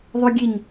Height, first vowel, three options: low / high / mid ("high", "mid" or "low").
mid